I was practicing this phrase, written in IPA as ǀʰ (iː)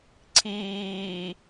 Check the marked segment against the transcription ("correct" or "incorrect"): correct